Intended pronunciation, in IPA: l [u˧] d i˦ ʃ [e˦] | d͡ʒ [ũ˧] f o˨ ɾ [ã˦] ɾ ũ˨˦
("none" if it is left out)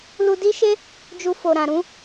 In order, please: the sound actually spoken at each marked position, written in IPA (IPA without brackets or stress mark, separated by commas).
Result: u˧, e˦, u˧, ã˨